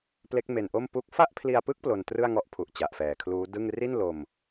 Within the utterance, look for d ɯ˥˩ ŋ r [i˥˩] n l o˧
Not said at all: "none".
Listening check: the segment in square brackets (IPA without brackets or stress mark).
i˥˩